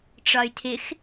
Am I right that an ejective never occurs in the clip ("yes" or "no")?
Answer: yes